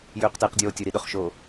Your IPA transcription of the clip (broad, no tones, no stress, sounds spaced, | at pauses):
j ʏː q t ɪː q dʲ oː tʲ ɵ ɾ i ɗ ɵ χ ʃ oː